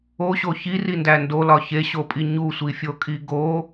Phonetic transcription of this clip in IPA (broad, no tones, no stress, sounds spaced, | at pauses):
o ɕ o ç i r i n d æ n d o l ɒ ç e ɕ o pʼ i ɲ u sʷ i fʲ o kʼ i ɡ o